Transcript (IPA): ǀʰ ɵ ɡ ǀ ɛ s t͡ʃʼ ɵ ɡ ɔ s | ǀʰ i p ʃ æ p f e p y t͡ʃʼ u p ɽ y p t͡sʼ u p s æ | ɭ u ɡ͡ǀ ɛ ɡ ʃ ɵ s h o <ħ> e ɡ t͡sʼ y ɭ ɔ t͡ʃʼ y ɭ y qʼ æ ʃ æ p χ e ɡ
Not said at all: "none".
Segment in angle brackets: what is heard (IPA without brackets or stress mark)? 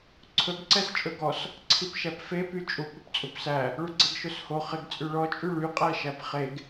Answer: χ